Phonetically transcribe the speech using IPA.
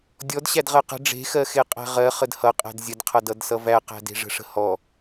dʲ ɔ d ɕ æ d ʁ ɜ q ə̤ ɖ͡ʐ e̤ x ɜ x e qʼ æ̤ ʁ ɜ χ ə d h ʌ qʼ æ̤ d zʲ ə d qʰ ʌ d ʌ d s ʌ v æ q æ̤ d e̤ ʐ ə̤ ʂ ə̤ h ɔ

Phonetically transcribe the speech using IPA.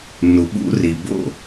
n u˨ ɓ ṵ˧ r i˨ b o̰˦˨

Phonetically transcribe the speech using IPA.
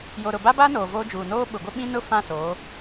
j o˨ ɾ ʊ˨ b a˦ b a˦ n oː˨ v oː˦ d͡ʒ uː˨ n oː˦ ɓ ʊ˨ ɡʷ ɪ˦ ɓ ĩ˦ n ʊ˦ f ã˦˨ s oː˨˦

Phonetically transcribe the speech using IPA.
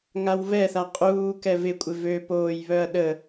ŋ a w v ɛ θ a qʼ uː k ɛ v ɪ kʷʼ ɪ v ø p oː j β œ ɐ̯ ɗ ə

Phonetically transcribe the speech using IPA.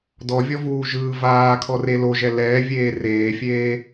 d ɔ vʲ ɔ v uː ʒ ɯː v aː kʰ ɔ r e l o ʒ ɛ l ɛː vʲ eː r eː fʲ eː

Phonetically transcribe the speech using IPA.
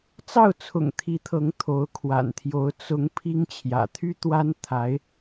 t͡s ɑ˥˩ ʊ̯ t͡sʰ ʊ̰˨˩ ŋ t̪ʰ i˧˥ t̪ʰ ɤ˧˥ ŋ t̪ʰ o˧˥ ʊ̯ kʰ w a̰˨˩ n t̪ʰ j o˧˥ ʊ̯ t͡s ʊ˧˥ ŋ pʰ i˥ ŋ t͡ɕʰ j ä̰˨˩ t̪ʰ y˥ t̪ w a˥ n t̪ʰ a˧˥ ɪ̯

